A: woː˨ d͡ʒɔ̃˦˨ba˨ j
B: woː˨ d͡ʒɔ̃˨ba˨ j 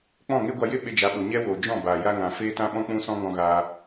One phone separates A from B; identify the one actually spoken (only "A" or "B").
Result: A